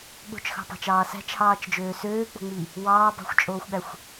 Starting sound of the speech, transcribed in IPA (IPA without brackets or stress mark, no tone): ɠ